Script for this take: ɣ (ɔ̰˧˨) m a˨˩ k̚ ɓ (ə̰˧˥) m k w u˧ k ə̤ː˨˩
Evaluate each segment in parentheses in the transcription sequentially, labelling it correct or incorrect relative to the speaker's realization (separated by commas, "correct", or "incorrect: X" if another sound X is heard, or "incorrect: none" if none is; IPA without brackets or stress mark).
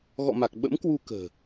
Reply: correct, correct